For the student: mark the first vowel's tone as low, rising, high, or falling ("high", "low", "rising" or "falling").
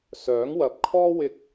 rising